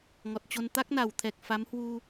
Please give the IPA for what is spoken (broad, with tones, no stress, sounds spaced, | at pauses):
ŋ ɔ˨˩ t̚ t͡ɕ o˧ n t̪ a˦˥ k̚ n a˨˩ w t̪ʰ ɛ˨˩ k̚ f a˨˦ m h w u˧